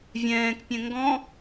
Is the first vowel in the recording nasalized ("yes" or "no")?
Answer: yes